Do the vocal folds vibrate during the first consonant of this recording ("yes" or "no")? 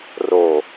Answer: yes